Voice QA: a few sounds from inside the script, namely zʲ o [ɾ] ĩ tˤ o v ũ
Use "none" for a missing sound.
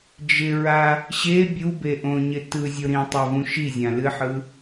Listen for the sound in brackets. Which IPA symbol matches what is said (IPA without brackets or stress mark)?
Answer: ɾ